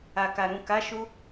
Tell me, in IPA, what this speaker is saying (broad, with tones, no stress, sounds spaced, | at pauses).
a˨ k a˨ ɾ ũ˨ k a˨˦ ʃ u˧